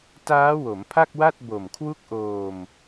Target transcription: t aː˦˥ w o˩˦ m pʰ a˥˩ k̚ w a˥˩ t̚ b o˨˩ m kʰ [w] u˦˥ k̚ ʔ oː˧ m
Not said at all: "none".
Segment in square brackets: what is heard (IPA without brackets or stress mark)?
w